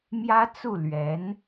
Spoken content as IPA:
m j ä˥ t͡s u˥˩ l ɥ ɛ˧˥ n

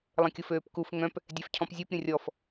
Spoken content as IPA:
lˠ ə̃ kʲ ʊ f øː p k u f ŋ œ̃ p | dʲ ɛ f cʰ ɔ̃ p zʲ u p ɾʲ ə̃ rʲ ɔ f

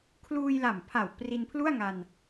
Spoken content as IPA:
kʰ l uː˧ j l a˨˩ m pʰ a˨˩ w p r i˧ n pʰ l u˥˩ a̯ ŋ a˧ n

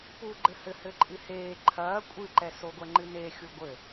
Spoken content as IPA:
p uː ɡ͡ǃ ɘ h ɘ h ɘ ǃʼ ɨ h eː ǃʰ ɐː kʷʼ ɨ ǃ ɛ s o ɡʷ ɛ ŋ͡ǃ ɨ n e xʲ u ɡʷ ɘ

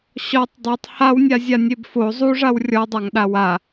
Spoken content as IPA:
ɕ ɔ tˤ dˤ o tˤ h a w nʲ a zʲ a nʲ e b f o zˤ u ʐ a w rʲ ɔ dˤ a ŋ ɗ a w a

